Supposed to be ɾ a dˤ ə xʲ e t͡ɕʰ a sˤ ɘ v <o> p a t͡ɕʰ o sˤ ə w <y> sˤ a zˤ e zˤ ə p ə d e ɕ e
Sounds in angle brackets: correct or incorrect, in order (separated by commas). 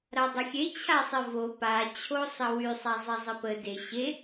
correct, correct